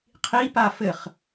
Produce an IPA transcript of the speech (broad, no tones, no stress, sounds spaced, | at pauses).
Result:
qʰ i p a f ɘ χ